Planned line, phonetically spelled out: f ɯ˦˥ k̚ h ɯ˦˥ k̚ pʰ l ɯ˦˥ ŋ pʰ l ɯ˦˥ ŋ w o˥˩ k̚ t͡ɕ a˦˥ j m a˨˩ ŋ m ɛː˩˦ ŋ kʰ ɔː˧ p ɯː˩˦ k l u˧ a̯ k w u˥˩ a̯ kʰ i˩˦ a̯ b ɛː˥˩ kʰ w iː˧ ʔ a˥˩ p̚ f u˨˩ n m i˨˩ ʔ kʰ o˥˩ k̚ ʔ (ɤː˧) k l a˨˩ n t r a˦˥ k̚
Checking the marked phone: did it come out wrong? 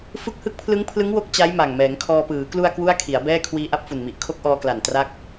yes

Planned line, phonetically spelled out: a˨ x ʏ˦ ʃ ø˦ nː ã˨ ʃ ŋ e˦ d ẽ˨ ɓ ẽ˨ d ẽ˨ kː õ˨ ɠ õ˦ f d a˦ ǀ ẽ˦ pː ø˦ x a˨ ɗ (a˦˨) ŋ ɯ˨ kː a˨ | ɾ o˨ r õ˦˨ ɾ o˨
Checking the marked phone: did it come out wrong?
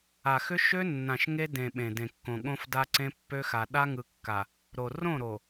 yes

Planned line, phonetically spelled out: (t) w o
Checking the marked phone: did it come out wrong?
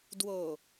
yes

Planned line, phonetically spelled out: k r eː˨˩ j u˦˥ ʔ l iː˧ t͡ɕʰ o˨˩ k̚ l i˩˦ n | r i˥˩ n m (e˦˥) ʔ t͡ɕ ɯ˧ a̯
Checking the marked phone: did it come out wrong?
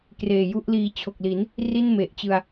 yes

